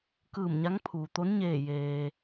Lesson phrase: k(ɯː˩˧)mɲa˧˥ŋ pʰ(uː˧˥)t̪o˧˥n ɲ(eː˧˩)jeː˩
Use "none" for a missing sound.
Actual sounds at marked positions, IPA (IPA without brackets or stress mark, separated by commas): ɯː˧˩, uː˩, eː˧˩